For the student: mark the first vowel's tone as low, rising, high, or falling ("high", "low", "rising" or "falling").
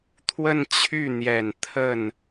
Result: falling